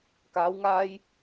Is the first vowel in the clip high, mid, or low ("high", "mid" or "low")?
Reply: low